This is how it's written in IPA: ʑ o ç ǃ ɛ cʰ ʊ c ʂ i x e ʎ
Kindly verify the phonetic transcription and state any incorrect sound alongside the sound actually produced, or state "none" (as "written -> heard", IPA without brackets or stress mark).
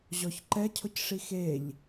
o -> ɔ